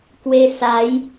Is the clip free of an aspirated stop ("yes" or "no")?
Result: yes